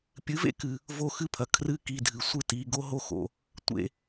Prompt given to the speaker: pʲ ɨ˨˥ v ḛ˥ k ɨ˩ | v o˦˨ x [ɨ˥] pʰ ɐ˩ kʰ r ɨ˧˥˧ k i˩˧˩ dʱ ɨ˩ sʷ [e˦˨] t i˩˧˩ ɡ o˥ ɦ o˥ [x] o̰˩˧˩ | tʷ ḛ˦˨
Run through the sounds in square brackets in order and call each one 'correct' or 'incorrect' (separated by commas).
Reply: correct, incorrect, correct